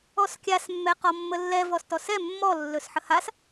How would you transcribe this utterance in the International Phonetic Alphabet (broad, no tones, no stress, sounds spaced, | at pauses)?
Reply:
ɔ s kʲ a s mː ɛ q ɔ mː ə lː ɛ v ɔ s t ɔ s ɛ mː ɔ lː ɵ s ħ ə h a s